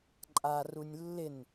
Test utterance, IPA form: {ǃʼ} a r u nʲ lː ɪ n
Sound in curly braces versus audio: correct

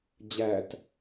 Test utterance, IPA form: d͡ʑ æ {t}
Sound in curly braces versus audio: correct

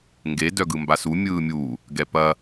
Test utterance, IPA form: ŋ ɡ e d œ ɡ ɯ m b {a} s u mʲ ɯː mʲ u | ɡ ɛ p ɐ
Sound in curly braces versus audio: correct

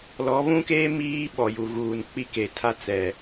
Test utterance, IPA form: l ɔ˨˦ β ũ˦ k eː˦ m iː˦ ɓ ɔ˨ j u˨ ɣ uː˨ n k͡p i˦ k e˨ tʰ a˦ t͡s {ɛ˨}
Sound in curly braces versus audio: correct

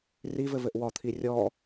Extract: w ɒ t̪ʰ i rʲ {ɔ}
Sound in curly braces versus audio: correct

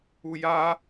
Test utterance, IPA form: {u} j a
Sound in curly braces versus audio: correct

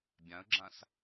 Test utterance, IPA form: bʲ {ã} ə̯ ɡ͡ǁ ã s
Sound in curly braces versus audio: correct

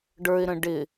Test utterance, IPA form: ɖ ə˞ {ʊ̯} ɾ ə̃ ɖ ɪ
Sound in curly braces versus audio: incorrect: ɪ̯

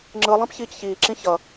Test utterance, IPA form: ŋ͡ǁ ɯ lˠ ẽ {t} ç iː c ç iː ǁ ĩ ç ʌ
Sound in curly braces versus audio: incorrect: p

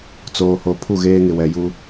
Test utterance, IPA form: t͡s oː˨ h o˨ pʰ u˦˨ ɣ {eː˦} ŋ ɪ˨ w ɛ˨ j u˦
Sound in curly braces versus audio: correct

